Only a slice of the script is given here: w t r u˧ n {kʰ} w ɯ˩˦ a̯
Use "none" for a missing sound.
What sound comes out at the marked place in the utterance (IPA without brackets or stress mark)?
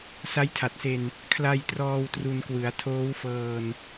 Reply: k